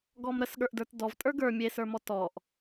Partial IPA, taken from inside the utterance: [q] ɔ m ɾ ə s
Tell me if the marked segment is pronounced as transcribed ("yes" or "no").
no